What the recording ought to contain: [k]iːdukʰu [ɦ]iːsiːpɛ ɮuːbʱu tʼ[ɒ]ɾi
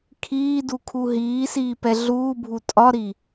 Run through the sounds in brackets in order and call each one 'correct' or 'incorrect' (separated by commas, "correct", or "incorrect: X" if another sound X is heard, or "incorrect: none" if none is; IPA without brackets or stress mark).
incorrect: kʰ, correct, correct